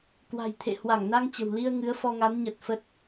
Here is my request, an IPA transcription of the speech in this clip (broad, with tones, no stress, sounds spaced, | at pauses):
k w a̤˨˩ j t̪ʰ ḛ˧˨ h w a˧˩ ŋ n a˧ ŋ t͡ɕ ə̤˨˩ w l i˧ ə̯ ŋ ɨ˨˦ ə̯ f ɔ˧ ŋ a˨˦ n ɲ ə˨˩ t̚ f ə˦˥ t̚